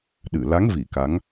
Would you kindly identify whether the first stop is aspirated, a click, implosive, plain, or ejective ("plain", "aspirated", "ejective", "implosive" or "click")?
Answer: implosive